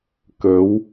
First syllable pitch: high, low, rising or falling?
rising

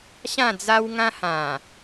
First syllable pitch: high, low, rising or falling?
falling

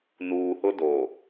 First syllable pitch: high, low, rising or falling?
low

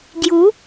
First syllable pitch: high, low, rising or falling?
rising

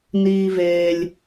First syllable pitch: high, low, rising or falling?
high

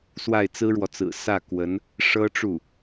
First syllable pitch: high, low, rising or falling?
falling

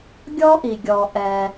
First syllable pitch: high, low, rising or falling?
high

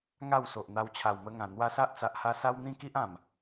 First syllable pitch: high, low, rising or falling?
falling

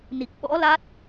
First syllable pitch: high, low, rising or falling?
low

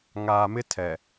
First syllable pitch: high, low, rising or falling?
low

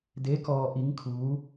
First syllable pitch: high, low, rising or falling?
rising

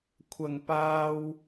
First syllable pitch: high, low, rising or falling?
low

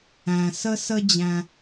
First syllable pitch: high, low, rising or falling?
low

